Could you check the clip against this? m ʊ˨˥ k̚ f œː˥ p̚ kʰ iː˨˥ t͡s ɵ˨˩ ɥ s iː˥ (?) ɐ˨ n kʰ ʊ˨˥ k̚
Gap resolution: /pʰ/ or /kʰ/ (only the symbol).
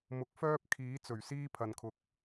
pʰ